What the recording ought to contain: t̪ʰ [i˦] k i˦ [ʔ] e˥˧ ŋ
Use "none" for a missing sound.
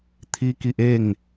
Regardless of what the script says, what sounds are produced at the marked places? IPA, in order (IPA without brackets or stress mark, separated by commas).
i˦, ʔ